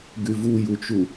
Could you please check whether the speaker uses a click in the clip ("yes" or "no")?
no